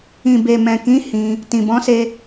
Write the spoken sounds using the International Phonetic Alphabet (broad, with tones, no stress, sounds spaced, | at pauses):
ĩ˨ b e˨ m ɛ̃˨ k ĩ˨˦ h ĩ˧ | t ĩ˨ b ɔ̃˨˦ s e˧